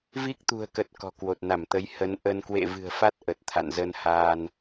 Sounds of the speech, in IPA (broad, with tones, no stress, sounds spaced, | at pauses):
v i˦˥ k̚ t̪ ṳ˨˩ ə̯ k ə˨˩ t̚ k ɔ̤˨˩ k w o˨˩ t̚ n a˧˩ m t̪ ə˨˦ j h ə˨˦ n ʔ ə˧ n k w ḛ˧˨ v ɨ̤˨˩ ə̯ f a˦˥ t̚ ʔ ə˨˩ t̚ t̪ʰ a̰˧˨ n z ə˧ n h aː˧ n